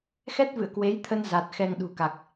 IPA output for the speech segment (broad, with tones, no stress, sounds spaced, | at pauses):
x ɛ˦˥ t̚ v ɨ̰˧˨ ə̯ k w e˨˦ j t̪ʰ ə˧ n z a˨˩ t̚ x ɛ˧ ŋ ɗ ṳ˨˩ k a˨˩ k̚